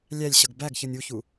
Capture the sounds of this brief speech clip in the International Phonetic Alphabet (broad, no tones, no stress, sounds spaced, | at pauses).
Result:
lʲ æ lʲ ɕ ʌ ɡ b æ ɡ ç ʌ nʲ u ç u